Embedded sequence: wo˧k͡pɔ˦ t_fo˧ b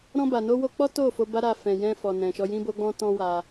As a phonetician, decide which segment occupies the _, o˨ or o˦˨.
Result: o˦˨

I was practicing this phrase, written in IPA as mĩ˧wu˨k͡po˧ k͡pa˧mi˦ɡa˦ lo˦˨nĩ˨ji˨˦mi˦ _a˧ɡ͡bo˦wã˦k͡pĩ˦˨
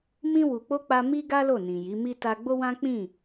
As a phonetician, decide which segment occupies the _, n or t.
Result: t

